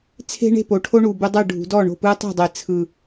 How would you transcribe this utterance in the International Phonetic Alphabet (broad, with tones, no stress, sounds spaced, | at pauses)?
t͡sʰ e̤˦ ɳ e̤˥˩ p o˨˩ ʈʰ o˦ ɳ u˨˩ b u˦ dˤ ɯ˥˩ ɖʱ ṳ˨˩˦ d ɔ˥˩ ɳ o̤˥˩ p ɯ˦ tˤ e̤˥˩ dˤ e˨˩˦ t͡sʰ ɯ˨˩